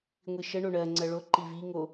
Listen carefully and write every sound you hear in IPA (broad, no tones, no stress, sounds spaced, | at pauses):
ŋʷ i ʃ ə ɳ o ɳ ɜ ŋ͡ǀ ɜ ɭ o ǃ i v i ŋ o